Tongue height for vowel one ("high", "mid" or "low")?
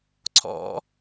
mid